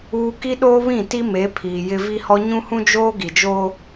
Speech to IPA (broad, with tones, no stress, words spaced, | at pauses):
uː˦ ki˦ɗoː˦βĩ˦˨ti˦ me˨˦ pʰiː˨ jɪ˦ vi˦hɔ˦ ɲũ˦hũ˦d͡ʒoː˦ ɡi˨d͡ʒoː˦